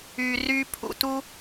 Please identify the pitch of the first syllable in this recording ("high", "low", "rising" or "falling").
low